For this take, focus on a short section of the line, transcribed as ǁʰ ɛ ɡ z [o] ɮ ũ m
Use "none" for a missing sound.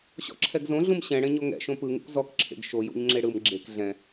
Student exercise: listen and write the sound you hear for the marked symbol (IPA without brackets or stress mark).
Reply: õ